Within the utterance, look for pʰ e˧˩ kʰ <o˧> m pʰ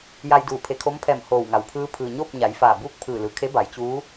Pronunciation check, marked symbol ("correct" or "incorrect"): incorrect